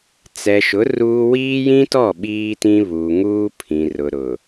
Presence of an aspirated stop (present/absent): present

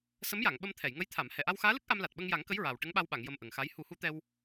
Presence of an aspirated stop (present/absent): present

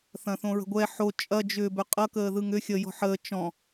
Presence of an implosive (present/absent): absent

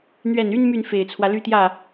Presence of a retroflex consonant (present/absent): absent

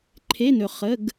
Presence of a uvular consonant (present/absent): present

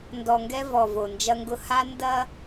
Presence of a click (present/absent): absent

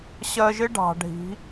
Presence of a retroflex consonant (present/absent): present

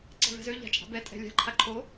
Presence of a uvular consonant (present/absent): absent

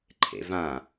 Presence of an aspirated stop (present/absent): present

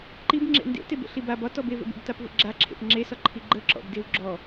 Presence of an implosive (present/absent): absent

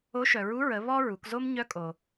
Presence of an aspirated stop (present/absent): absent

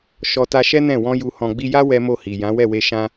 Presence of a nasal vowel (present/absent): present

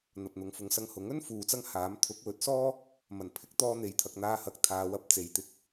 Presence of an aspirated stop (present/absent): present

